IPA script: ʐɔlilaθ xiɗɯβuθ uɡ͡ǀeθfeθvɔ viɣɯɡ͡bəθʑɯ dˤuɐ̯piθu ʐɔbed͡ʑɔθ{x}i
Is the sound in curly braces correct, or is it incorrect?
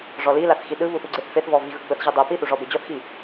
correct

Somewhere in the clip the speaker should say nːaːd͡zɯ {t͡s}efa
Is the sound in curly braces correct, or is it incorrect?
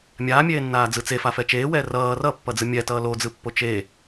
correct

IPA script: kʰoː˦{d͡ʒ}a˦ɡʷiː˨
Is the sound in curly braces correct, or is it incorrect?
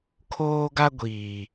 incorrect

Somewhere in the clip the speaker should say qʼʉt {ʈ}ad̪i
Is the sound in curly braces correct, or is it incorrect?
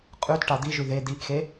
correct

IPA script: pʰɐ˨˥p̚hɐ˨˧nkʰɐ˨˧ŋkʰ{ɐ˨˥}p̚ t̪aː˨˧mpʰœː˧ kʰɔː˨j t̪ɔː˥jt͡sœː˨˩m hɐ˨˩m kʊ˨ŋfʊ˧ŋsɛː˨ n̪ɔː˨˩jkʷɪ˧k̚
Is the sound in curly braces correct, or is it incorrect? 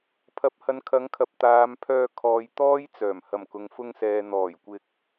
incorrect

